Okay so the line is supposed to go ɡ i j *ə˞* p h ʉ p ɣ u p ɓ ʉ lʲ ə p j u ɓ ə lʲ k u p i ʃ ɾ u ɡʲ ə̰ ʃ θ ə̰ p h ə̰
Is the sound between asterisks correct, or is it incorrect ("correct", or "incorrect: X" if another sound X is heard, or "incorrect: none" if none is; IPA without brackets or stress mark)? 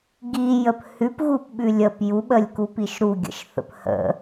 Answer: incorrect: ə